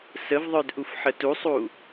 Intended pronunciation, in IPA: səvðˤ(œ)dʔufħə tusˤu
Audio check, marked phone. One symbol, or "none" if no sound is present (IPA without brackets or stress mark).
œ